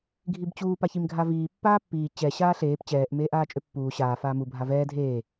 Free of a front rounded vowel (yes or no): no